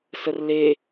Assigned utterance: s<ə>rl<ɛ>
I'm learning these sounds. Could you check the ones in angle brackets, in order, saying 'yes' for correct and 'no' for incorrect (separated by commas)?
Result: yes, no